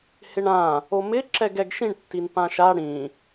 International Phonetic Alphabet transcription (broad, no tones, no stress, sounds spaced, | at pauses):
h ɪ ɳ ã | o m ɪ ǁ ɛ ɡ ɛ ɡ ʃ ĩ ɳ tː i n p ã ʃ a ɽ ĩ